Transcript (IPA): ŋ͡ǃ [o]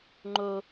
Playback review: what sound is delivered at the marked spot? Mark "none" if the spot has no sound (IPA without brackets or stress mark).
o